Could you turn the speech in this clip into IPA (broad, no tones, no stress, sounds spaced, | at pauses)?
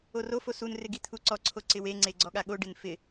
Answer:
o r o f o s u n r ɪ ɡ i t̪ʰ u ǀ ɔ ǀʰ o ǀ ɪ w e ŋ͡ǀ e ɡ͡ǀ ɔ ɠ a ɠ o ɖ ɪ n f ɪ